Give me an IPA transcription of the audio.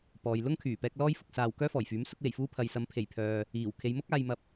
p ɔː˨ j l ʊ˥ ŋ kʰ yː˨˩ p ɛː˧ k̚ l ɔː˥ j f ʊ˧ k̚ s aː˨ w k œː˥ f ɔː˨˩ j f yː˨˥ m s ʊ˧ k̚ w e˨˩ j f uː˧ pʰ ɐ˨ j s ɐ˨˧ m pʰ e˨˩ j pʰ œː˨ | iː˨˩ w kʰ e˨˧ j m ʊ˥ k̚ aː˧ j m ɐ˧ p̚

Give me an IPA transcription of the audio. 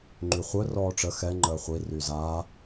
ŋ͡ǃ y χʷ œ r ɔː ʈ͡ʂ ə x ɛ ŋ͡ǃ əː χʷ i r y z aː

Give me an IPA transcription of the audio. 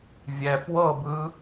vʲ ɛ p w ɤ b ɯː

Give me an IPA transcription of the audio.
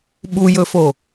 ɓ u j ɵ f o

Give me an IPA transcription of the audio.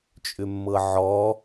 t͡ʃʼ ʏ mː ɤ ʕ ɔ

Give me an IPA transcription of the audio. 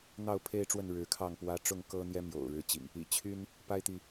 n̪ ɑ˥˨ ʊ̯ pʰ e˦ ɪ̯ ʈ͡ʂ w ə˥˨ n ɻ ɻ̩˨˦ kʰ ɑ˥˨ ŋ p w ä˦ ʈ͡ʂ ʊ˥˨ ŋ k ɤ˦ n̪ j ɛ˦ m j o̰˨˩ ʊ̯ ɻ ɻ̩˨˦ t͡ɕ ḭ˨˩ ŋ | ḭ˨˩ t͡ɕʰ y˦ n | p a˦ ɪ̯ t̪ i˨

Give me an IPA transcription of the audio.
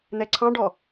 n̪ ɛ ǀʰ ɑ̃ ɖ ɔ

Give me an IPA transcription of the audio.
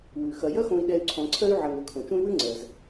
w ʉ˩ x ɐ˩ j ɐ˦ x õ˨ i̯ ɗ ɛ˨ y̯ ǀʰ ɔ̃˨ ǀʰ ɜ˦ y̯ ʕ ɐ˨ ŋ ø˨ kʰ õ˩ t͡ʃ ũ˦ y̯ w ʉ˥ ŋ͡ǀ ɜ˩ z

